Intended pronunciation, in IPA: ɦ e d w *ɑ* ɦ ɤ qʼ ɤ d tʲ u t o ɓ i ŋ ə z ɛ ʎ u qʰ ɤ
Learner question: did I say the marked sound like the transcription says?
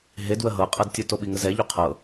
no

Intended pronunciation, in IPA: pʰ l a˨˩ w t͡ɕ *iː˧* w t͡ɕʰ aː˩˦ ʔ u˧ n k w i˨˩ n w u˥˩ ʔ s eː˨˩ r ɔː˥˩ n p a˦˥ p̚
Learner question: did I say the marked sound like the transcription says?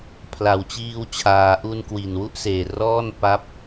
yes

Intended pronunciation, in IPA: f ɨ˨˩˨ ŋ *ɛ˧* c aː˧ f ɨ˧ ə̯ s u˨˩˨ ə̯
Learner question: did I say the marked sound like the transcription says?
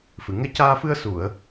yes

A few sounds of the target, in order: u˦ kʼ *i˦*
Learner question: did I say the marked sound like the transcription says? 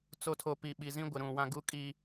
yes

